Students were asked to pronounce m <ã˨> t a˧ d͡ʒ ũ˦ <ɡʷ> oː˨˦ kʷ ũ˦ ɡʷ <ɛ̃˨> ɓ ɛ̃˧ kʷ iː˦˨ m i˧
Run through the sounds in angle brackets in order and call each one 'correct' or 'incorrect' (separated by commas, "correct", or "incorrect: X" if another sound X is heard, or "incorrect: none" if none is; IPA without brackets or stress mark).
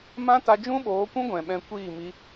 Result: incorrect: ã˦, incorrect: ɓ, correct